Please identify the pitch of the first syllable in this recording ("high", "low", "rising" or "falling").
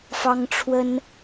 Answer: high